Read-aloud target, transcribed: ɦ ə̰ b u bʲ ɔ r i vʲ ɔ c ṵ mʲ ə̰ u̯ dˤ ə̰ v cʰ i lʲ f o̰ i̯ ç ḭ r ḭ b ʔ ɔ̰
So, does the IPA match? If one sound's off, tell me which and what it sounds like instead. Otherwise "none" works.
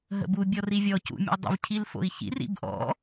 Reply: lʲ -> l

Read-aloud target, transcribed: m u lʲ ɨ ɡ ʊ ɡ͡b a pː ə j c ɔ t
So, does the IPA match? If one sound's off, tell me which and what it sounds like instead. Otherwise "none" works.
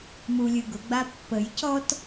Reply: none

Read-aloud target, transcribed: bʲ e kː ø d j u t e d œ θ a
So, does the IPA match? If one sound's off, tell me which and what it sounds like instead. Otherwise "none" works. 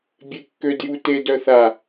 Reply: none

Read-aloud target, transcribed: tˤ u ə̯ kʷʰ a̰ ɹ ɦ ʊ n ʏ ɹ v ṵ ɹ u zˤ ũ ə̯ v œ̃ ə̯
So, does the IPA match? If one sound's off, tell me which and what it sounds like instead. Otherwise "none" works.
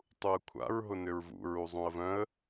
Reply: none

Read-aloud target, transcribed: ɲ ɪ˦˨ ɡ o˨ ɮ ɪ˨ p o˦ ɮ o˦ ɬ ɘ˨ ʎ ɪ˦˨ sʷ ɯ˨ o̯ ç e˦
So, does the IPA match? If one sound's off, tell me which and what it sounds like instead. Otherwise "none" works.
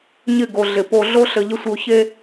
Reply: none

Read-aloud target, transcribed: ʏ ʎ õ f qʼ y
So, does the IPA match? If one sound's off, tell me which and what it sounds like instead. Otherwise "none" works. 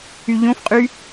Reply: ʏ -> y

